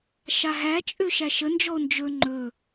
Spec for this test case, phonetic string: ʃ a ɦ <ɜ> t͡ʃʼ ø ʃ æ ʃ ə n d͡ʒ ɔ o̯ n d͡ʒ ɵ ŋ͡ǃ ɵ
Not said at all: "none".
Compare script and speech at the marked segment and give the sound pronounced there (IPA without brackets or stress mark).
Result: æ